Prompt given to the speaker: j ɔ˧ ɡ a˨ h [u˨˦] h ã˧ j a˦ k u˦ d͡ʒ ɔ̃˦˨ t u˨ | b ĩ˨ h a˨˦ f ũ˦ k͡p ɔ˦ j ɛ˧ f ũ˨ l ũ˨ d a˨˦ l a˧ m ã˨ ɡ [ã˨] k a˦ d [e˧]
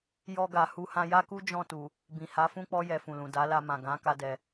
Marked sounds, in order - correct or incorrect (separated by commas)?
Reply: correct, incorrect, incorrect